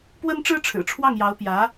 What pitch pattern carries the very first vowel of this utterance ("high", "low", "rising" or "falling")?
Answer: high